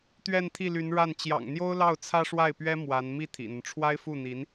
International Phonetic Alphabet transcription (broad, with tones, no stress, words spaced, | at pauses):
t̪ɥɛ˥˧nt̪ʰi˥˩ly˧˥nɻa˥˩n t͡ɕjɑ̰˨˩ŋn̪jo˥ʊ̯lɑ˥˩ʊ̯ t͡sʰä˥ʂwa˥˩ɪ̯pɥɛ˥ mwa˧˥n mi˥˩ t̪ʰḭ˨˩n̪ə˦n ʈ͡ʂʰwa˥ɪ̯fu˥˩n̪i˧˥n